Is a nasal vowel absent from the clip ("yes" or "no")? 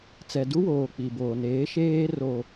yes